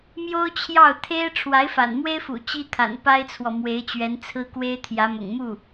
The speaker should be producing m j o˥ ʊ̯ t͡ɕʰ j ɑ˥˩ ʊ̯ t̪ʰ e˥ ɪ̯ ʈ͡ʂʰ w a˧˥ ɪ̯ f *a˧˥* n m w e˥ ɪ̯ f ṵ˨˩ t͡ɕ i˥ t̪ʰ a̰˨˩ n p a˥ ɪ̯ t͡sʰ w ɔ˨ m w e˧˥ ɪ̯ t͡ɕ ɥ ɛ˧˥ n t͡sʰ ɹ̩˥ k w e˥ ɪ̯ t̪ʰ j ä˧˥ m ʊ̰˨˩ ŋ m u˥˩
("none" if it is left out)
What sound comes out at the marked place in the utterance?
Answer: a̰˨˩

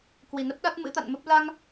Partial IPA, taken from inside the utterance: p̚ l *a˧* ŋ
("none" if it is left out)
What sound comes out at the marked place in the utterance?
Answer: a˧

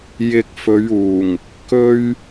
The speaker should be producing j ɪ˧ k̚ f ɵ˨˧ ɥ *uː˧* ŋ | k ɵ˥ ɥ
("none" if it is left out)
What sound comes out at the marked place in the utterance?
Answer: uː˨˩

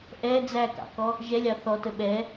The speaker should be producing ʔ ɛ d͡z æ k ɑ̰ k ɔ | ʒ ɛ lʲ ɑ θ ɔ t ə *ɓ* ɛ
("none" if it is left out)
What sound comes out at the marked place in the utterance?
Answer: ɓ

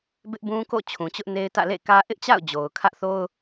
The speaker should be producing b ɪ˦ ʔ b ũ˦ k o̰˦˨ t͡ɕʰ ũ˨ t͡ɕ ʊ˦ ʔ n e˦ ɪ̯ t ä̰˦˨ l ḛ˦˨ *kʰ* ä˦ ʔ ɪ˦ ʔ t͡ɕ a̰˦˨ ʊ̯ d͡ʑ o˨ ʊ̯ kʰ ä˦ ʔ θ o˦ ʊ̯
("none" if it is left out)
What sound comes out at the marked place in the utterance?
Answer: k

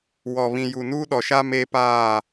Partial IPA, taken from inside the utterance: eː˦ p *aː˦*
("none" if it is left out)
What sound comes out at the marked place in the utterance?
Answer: aː˦˨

